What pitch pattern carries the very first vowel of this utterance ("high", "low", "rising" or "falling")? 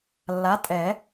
rising